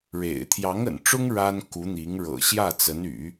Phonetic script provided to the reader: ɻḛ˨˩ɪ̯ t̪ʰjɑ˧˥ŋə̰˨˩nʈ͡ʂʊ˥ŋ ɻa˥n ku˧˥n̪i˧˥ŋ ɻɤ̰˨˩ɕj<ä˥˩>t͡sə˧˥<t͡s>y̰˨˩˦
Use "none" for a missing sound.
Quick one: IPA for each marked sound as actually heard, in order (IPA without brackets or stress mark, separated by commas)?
ä˥˩, n